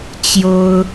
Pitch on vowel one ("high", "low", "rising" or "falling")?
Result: high